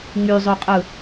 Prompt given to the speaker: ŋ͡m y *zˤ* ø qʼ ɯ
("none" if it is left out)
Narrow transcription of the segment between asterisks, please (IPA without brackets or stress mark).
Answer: zˤ